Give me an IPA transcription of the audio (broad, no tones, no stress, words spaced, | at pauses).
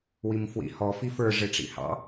wimfwḭhɔ fifə˞ ʐɪʈ͡ʂḭhɑ̰